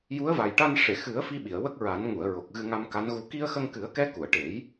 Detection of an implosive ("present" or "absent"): present